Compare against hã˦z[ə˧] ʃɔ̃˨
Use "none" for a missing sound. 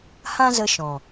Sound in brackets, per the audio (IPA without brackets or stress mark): ə˧